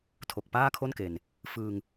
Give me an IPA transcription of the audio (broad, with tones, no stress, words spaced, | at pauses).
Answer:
tʰo˨˩k̚paː˥˩kʰo˥˩nke˨˩n | fɯː˧ŋ